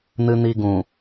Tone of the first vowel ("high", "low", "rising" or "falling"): low